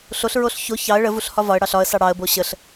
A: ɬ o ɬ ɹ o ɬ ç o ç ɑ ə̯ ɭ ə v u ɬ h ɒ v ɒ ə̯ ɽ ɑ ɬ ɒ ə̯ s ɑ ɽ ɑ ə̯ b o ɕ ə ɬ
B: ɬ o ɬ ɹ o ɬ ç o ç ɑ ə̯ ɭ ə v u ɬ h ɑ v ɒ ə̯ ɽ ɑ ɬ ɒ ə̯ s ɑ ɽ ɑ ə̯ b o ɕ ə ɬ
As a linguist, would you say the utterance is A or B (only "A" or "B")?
A